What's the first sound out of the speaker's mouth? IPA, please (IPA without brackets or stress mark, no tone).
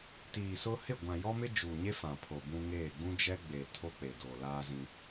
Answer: t